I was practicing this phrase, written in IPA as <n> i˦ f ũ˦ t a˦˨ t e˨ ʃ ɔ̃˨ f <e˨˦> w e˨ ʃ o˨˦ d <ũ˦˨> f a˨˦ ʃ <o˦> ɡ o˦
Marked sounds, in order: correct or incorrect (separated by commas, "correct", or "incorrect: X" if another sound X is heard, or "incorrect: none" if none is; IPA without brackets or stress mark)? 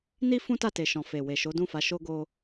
correct, incorrect: e˨, correct, correct